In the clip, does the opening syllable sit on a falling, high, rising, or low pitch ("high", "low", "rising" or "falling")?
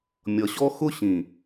low